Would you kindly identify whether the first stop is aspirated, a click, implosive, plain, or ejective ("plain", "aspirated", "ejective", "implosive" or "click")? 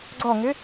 click